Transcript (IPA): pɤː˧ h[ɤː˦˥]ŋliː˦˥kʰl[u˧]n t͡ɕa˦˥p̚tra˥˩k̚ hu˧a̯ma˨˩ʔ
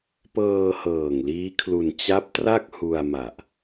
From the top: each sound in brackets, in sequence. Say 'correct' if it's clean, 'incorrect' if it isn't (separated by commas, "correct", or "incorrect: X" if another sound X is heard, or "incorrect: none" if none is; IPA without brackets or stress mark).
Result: incorrect: ɤː˨˩, correct